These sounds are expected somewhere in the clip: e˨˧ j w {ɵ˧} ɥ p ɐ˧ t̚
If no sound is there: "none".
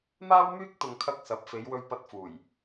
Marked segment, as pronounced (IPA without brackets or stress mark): ɵ˧